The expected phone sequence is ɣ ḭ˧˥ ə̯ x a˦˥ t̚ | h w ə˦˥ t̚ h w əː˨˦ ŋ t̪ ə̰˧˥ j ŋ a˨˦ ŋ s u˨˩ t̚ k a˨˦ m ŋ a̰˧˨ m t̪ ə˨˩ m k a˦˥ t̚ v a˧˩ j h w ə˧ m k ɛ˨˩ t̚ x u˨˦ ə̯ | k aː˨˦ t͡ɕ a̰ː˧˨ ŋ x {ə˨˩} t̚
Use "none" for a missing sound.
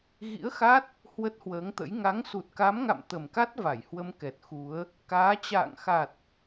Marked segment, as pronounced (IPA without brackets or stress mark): a˨˩